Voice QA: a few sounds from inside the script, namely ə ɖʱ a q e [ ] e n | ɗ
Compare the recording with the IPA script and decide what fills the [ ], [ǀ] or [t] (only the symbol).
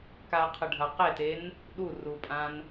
t